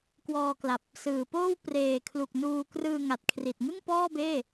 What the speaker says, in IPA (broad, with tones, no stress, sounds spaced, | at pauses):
k w ɔː˧ k l a˨˩ p̚ | s ɯː˨˩ p oː˥˩ w p r eː˨˩ kʰ l u˨˩ k̚ n uː˧ k r ɯː˧ ŋ a˨˩ t̚ kʰ r i˨˩ t̚ ŋ ɯ˥˩ ŋ p ɔː˥˩ b eː˥˩